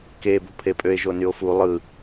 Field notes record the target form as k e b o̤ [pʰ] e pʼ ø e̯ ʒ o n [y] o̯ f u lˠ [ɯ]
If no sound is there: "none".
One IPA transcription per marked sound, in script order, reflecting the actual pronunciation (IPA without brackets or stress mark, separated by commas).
pʰ, y, ɯ